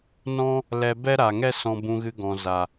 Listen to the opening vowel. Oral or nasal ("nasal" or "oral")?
nasal